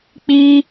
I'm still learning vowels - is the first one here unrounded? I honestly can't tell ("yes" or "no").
yes